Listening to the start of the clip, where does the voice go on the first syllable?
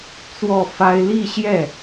falling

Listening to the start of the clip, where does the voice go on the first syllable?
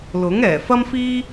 rising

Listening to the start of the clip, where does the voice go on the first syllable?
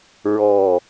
falling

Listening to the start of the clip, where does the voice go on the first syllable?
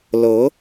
rising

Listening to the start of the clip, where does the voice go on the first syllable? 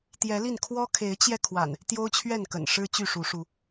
rising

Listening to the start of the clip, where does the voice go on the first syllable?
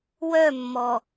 falling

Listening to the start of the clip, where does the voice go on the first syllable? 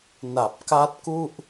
low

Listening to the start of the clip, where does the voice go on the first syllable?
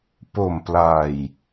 low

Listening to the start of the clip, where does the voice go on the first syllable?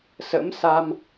rising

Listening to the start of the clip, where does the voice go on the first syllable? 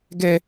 high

